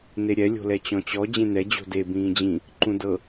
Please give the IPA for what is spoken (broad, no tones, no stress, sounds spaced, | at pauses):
n e ɾʲ ɛ lʲ o̤ l ɛ t͡ɕ ɔ̃ t͡ɕ ɔ d͡ʑ ẽ n̪ ɛ d͡ʑ o̤ d e b ĩː d͡ʑ ĩ | ǃ ũ d ɤ